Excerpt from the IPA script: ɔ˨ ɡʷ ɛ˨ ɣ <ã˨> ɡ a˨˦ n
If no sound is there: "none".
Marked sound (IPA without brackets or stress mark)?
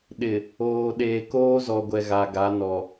a˨